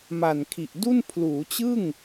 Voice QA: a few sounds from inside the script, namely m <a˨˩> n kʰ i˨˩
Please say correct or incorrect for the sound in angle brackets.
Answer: correct